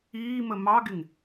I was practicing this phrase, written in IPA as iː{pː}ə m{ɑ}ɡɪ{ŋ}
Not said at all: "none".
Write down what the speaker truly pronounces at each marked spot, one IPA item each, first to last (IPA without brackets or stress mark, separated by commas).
m, ɑ, ŋ